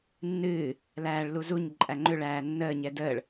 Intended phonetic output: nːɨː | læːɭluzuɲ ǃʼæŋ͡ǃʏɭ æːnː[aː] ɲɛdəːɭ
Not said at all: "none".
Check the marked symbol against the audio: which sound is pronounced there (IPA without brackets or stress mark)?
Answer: əː